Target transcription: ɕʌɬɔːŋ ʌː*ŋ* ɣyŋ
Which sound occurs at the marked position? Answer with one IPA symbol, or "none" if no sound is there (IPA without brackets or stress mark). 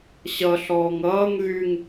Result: ŋ